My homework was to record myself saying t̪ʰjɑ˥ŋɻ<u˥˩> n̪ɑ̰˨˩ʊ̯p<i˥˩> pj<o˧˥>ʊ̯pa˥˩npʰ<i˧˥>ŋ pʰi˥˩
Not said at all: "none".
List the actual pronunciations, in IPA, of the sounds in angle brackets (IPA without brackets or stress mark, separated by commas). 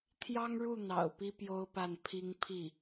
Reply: u˥˩, i˥, o˥, i˥